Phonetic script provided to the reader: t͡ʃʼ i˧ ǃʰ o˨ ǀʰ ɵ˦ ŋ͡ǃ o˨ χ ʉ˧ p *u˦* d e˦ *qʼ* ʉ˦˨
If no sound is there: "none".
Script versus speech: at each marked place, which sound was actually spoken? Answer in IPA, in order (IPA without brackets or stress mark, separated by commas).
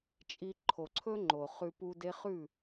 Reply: u˦, χ